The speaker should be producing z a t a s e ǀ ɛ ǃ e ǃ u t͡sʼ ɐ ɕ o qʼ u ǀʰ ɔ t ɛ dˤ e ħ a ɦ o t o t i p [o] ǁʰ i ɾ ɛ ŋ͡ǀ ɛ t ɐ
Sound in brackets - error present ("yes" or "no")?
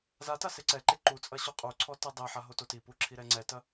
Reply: yes